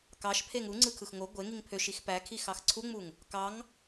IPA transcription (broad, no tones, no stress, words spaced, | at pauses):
kɑʃpʰeŋ u ŋ͡ǀɯkʰɯxŋo ɡʷe ŋiŋpʰøʃ ixpækʰi xɑxǀʰuŋ͡muŋ | kɑŋ